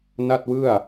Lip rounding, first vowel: unrounded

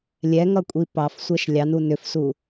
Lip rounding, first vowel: unrounded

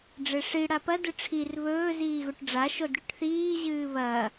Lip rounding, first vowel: unrounded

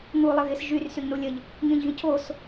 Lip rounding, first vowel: rounded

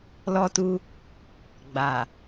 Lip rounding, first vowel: rounded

